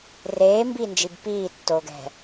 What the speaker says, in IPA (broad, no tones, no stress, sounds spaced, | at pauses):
r eː m b iː n d͡ʒ i b p iː tː o ɡ ɛ̤